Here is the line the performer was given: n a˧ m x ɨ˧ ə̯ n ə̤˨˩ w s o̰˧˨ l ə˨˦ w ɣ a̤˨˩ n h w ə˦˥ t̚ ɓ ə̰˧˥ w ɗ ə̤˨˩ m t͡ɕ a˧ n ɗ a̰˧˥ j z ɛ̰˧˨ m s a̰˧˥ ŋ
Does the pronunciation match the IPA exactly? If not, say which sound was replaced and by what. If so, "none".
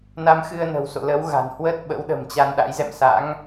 none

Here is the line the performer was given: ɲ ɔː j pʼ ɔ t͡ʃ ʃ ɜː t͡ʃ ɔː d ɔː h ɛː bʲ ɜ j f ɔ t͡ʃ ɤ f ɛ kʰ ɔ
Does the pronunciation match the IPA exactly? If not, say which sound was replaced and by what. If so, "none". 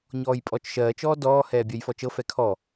none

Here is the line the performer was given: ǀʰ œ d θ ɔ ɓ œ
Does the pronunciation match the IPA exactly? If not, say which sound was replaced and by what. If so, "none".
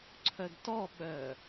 θ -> t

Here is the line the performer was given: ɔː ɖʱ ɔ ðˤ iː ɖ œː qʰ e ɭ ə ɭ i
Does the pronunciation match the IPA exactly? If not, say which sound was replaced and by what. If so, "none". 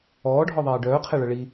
none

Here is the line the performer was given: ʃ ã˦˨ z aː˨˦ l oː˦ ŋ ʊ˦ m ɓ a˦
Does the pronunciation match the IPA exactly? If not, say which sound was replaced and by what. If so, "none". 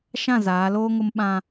a˦ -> ã˦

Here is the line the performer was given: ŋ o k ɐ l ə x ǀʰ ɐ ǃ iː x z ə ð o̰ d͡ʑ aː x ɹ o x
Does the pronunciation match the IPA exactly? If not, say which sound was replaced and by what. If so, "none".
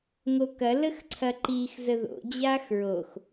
none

